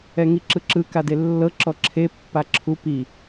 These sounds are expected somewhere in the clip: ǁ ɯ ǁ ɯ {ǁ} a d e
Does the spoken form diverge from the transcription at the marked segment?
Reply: yes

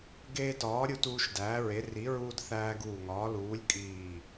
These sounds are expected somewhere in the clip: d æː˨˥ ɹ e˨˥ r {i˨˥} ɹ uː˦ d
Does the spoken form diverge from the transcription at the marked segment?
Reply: no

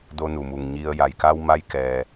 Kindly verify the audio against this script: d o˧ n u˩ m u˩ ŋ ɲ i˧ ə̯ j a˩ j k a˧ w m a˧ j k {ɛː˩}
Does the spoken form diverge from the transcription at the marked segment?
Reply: no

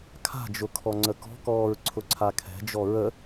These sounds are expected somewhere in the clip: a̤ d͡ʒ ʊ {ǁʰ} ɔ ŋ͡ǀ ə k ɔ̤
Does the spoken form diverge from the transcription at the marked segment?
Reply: yes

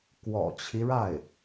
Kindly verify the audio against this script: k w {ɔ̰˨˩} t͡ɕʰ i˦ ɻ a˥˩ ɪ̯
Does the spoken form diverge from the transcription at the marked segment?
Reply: no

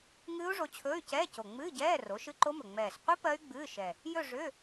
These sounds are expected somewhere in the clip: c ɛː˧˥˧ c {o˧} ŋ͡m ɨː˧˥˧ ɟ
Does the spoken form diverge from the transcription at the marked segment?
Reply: yes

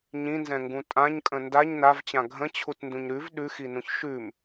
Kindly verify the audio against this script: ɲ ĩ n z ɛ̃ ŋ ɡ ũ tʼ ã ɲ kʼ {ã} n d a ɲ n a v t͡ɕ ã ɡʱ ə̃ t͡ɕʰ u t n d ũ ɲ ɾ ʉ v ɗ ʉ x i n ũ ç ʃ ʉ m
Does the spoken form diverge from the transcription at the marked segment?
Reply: yes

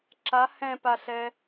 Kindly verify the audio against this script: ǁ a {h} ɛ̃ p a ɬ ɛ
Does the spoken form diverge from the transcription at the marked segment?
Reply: no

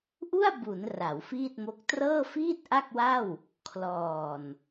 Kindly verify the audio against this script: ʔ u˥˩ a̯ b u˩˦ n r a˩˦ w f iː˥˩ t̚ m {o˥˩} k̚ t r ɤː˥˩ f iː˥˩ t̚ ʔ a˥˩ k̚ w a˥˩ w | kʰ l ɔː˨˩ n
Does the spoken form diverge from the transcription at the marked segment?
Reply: yes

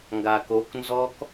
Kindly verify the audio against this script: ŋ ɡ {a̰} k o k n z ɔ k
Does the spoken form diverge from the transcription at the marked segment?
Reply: yes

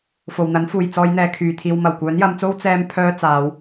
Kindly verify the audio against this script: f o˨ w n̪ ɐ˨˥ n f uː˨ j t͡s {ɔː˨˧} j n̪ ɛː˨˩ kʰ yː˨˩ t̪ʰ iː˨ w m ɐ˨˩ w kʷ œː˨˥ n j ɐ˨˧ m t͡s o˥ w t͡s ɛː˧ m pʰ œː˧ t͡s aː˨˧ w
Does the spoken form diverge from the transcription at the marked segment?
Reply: no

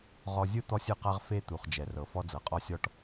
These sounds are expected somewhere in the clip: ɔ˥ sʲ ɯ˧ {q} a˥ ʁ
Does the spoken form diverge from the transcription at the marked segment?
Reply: no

